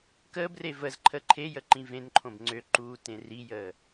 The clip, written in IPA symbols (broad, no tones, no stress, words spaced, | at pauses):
kəːbre vəz ǃʰəǃʰejə ǃĩvẽnǃʰõb ŋ͡ǀøǃuː tẽrijəː